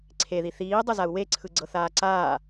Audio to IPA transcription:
ǀʰeði θiːdˤɯzau̯ weǀʰɯ ɡ͡ǀɤθaːǀaː

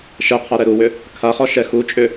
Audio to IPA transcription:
ʃɛqʰa ɾɛɾuwʏ | kʰaχɔ ʃɛxut͡ʃʼʏ

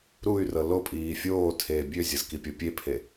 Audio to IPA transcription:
ɾuy̯rɤ lopʼiː fʲoːtʰeː bʲøzʲɤz kipʲɤpʲepʰe

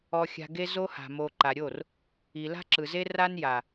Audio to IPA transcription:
ɔ˧xʲa̤˧ɡe˦zo˦ ha̤˨mo˨ǃa˨ɾʲo˦˨r | i˨la̤˦ǁɯ˨ze˦ ra˦n ja˨

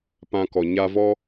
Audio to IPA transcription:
pã˧kɔ˨ ɲa˧vɔ˦

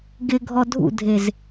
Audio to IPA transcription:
ɡɪɡʱɔ dʱṵdʱez

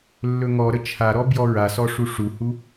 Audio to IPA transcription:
lːɵŋɔɾə t͡ʃʰaɾɔ bjɔɹasɔ ʂuʂuhu

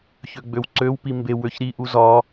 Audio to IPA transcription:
çøɡ͡bøwǀøw pimbe wøçɾi ʔuzɒ

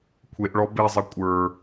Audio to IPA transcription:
kʷʰeʔɭɔ bezˤɛ kʷʼə˞

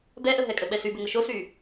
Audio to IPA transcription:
bɛʔəɦɛ kʼəɓɛsybʏ ŋʊʃosyː

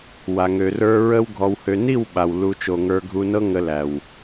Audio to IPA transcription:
wa˨ŋø˨rə˞˧ ɹə˦w ɡʱɔ˨whø˨ni˦˨w ɓa˨w lu˨ t͡ʃo˨ŋə˞˧ɡʱu˧nɤ˦ ŋə˧læ˨w

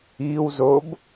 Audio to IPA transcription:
iwzob

